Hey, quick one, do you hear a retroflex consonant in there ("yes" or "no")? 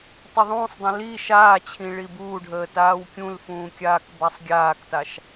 yes